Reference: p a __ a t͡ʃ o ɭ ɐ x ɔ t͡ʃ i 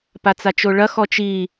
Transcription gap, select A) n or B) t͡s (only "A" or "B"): B